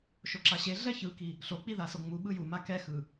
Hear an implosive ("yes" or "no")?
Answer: yes